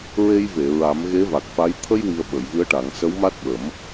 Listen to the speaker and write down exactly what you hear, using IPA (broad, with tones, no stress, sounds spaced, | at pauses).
ɹ e˧ j v e˨˩˨ ɹ a˨˩˦ m ɣ e˧˥ v a˨˩ k̚ f a˧˥ j t̪ʰ ə˧ j w i˨˩ ə̯ ɓ ə˨˩˨ j v ɨ˧˥ ə̯ ʈ a˨˩˦ ŋ s ə˧˥ w m a˦˥ t̚ ɓ ə˨˩˦ m